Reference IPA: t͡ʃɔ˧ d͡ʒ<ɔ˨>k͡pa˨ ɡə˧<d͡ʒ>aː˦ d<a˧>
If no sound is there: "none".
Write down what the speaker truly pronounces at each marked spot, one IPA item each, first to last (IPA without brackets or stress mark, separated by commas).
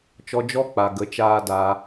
ɔ˧, t͡ʃ, aː˧